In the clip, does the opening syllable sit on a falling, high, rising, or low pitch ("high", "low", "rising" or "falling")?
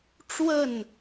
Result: falling